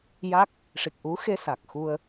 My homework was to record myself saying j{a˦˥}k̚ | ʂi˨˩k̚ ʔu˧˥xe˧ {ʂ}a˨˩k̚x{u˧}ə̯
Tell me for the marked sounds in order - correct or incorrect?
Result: correct, incorrect: s, correct

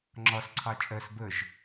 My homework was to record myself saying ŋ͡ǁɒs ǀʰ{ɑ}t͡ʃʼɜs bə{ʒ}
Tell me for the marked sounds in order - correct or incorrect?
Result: correct, correct

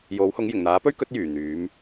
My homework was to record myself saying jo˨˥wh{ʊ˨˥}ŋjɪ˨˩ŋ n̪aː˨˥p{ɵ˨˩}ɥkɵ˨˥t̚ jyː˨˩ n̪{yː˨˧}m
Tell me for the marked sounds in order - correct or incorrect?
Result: correct, incorrect: ɵ˥, correct

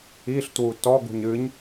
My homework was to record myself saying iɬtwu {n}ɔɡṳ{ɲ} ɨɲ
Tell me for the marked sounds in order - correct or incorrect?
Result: incorrect: t, correct

